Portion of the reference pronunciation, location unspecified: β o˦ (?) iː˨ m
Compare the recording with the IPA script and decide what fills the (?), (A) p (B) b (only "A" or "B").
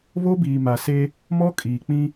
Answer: B